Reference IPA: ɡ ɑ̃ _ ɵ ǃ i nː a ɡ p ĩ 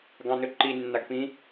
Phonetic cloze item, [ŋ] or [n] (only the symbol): n